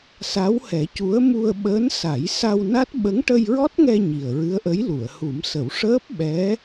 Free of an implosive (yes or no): no